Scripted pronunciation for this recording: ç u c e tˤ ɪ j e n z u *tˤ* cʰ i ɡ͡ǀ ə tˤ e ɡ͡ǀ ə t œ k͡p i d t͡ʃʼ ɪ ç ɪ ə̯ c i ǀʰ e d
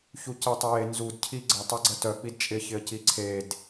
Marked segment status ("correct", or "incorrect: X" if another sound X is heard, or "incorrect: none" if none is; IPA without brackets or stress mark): incorrect: d